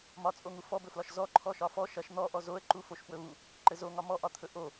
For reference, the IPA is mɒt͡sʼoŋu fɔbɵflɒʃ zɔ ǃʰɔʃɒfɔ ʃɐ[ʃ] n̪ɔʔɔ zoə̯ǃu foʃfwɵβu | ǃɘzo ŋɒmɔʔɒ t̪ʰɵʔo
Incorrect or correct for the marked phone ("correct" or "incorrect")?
correct